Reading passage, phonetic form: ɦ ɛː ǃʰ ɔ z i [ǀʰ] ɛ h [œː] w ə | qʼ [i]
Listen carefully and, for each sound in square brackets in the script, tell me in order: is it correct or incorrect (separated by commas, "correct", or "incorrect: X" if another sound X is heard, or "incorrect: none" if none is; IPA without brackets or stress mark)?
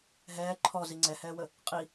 incorrect: ŋ͡ǀ, incorrect: ɛː, correct